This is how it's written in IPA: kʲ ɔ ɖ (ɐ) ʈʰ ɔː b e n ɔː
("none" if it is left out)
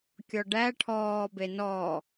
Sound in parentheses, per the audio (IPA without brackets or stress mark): æ